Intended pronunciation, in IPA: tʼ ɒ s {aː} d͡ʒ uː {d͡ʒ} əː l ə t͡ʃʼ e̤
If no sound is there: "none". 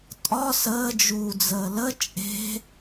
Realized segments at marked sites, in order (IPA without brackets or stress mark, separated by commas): əː, d͡z